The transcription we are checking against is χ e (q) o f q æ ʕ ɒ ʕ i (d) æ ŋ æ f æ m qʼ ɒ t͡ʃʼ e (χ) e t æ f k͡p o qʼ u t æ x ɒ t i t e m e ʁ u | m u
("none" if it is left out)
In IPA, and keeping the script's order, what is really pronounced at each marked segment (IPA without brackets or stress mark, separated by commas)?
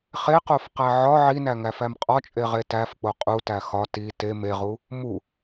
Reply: q, n, ʁ